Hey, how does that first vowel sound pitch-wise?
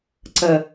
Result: low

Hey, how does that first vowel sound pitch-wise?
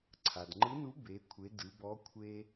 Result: low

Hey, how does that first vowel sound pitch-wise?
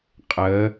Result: rising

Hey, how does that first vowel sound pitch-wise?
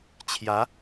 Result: rising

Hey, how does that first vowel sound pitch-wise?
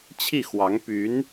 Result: falling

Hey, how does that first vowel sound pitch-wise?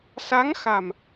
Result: rising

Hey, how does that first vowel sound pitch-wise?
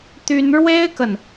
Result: high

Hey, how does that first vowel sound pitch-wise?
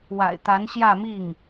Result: low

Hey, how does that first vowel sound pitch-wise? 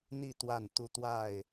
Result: falling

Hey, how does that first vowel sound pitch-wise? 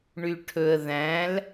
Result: low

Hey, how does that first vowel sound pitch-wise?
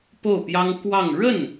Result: falling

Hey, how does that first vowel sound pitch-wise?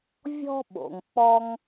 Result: high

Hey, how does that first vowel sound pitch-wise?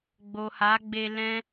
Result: low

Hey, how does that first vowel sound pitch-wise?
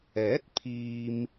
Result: rising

